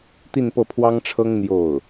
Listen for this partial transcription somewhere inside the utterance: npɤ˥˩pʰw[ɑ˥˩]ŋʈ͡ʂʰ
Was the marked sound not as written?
yes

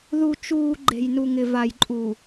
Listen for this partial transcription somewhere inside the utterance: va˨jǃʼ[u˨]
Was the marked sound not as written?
no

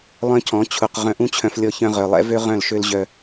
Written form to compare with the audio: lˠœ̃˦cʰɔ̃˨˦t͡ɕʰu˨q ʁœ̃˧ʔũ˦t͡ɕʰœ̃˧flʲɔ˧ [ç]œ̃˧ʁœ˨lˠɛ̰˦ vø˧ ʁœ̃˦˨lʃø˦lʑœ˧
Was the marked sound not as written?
no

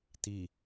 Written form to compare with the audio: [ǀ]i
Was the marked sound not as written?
yes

